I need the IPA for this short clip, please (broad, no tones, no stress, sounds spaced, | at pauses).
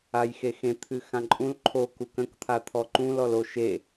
a j x e x ẽ t̪ʰ ɨ x ã ǃʼ ũ l ǃʰ o k u k ə̃ k t̪ʰ a t̪ʰ ɔ ǃ ũ l ɔ l o ʃ e